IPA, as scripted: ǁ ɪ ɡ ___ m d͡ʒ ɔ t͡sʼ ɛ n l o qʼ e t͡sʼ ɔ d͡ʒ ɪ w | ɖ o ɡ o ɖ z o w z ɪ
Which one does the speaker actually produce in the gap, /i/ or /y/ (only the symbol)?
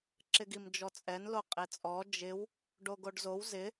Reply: i